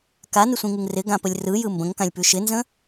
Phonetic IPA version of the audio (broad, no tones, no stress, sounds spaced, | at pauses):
k a n ɪ sʷ ĩ ŋ ɯ ŋ r ɪ ɡ ã p ə lʲ r ɯ j ɯ m b ə̃ ŋ k ã lʲ p ʉ ʃ ɪ n z ə̃